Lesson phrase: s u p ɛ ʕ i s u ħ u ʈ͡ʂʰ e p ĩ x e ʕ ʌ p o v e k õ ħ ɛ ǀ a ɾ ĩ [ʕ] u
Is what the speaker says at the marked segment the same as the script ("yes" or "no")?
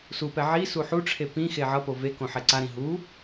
no